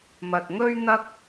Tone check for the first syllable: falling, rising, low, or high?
low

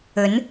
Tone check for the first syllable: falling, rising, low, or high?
rising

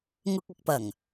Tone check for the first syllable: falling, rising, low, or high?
high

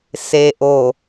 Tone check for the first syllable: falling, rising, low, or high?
low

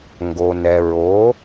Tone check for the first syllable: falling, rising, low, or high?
low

